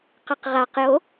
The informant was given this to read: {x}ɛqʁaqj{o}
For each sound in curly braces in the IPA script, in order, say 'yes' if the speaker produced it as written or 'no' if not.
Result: no, yes

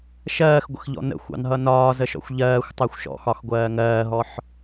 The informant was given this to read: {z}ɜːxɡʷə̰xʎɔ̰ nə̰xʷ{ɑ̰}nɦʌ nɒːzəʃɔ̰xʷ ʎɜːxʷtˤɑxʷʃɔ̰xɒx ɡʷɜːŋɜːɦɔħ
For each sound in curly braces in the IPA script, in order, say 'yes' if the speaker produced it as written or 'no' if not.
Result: no, yes

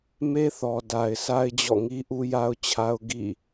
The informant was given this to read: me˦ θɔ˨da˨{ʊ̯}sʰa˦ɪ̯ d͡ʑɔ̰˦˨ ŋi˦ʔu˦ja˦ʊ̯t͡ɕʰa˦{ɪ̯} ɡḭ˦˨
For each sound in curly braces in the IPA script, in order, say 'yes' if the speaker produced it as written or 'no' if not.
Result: no, no

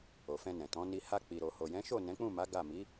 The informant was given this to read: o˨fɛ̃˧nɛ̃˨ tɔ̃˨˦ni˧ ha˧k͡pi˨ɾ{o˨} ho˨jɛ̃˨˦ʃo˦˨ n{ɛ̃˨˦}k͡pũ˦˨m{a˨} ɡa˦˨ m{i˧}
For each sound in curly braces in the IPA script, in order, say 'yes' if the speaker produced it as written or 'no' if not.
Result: yes, yes, no, no

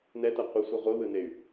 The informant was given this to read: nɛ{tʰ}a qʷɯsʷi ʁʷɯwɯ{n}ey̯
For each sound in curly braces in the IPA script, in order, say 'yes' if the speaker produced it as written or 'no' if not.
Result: no, yes

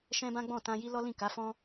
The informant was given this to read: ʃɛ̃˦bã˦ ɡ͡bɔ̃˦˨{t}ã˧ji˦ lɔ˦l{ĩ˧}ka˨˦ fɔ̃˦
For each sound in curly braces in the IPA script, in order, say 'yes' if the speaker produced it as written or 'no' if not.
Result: yes, no

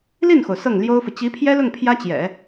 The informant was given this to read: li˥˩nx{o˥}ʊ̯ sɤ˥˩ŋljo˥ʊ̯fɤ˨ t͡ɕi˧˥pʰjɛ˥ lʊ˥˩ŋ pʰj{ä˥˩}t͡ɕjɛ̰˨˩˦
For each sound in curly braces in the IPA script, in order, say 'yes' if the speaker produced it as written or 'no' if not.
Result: no, no

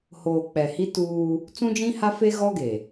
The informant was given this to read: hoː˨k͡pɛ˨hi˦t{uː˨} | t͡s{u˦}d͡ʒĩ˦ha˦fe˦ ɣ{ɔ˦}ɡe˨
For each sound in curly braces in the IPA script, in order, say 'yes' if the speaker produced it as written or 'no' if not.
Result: no, no, yes

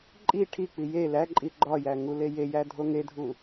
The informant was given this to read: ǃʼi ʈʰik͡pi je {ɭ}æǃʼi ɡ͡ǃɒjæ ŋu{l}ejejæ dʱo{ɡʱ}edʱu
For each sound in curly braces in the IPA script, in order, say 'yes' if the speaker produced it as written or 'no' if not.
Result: no, yes, no

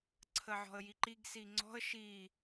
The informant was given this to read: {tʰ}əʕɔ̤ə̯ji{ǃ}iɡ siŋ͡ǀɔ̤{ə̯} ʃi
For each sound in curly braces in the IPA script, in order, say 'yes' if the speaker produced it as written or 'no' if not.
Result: no, yes, yes

